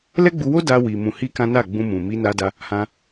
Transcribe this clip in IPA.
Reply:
l ɛ˦ ɡ͡b u˧ w o˦ d a˧ w i˨ m ũ˧ h i˦ k ã˦ n a˦˨ ɡ͡b ũ˧ m ũ˨ m i˧ n a˧ d a˧ | h ã˧

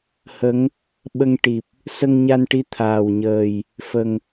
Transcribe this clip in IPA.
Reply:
h ə˧˥ ŋ | ɓ ə˧ ŋ ʈ i˨˩ p̚ | s ə˧ ŋ ɲ a˧ n ʈ i˧ t̪ʰ aː˨˩ w ɲ əː˨˩ j | f ə˨˩ ŋ

